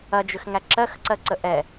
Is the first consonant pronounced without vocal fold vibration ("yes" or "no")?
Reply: no